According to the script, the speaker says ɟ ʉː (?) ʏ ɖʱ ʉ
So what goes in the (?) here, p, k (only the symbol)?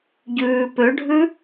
p